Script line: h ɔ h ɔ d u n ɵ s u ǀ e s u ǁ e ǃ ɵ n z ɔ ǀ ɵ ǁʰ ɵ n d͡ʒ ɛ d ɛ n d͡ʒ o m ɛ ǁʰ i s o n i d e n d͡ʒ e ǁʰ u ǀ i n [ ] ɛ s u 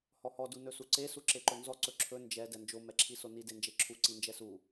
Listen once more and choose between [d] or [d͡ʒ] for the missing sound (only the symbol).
d͡ʒ